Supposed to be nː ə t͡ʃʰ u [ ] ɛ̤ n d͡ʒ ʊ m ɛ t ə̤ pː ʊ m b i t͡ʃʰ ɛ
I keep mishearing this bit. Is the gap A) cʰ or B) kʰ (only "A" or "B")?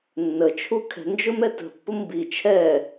B